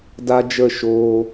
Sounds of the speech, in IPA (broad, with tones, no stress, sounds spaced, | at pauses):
d a˦ d͡ʒ ə˦˨ ʃ oː˧